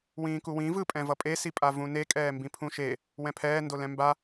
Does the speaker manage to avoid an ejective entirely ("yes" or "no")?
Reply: no